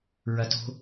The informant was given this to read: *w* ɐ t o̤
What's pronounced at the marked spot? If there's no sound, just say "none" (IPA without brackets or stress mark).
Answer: ɹ